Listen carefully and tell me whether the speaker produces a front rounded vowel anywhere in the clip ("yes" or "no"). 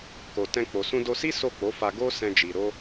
no